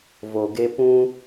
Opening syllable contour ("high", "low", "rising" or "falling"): low